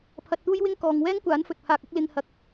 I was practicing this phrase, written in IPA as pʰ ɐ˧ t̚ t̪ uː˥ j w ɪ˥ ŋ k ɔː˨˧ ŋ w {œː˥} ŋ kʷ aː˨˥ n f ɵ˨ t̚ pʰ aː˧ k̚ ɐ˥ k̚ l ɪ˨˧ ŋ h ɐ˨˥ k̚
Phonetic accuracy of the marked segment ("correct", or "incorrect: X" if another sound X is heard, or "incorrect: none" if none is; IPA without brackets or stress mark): incorrect: ɛː˥